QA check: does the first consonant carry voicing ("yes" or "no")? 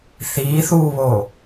no